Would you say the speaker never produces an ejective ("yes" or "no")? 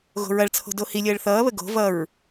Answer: yes